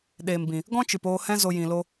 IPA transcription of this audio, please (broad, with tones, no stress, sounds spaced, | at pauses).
ɗ eː˨ m b ĩ˨ | ɡ ɔ̃˦ t͡ʃ ɨ˨ p oː˧ h ɛ̃˦ z o˧ j ĩ˧ l o˦